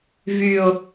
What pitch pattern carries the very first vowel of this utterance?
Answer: low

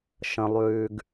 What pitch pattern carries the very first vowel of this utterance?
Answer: low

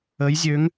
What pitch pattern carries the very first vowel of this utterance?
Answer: rising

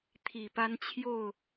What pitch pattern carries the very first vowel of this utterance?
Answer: low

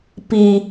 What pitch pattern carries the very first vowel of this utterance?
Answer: low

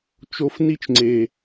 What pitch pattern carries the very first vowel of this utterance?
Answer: high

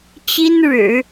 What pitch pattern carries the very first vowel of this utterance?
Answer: high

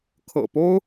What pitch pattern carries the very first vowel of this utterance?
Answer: low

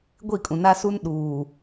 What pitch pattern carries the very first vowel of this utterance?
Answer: falling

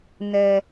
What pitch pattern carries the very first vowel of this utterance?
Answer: high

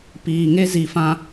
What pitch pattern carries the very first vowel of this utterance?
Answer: low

